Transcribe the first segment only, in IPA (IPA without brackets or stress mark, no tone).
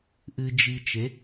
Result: ʔ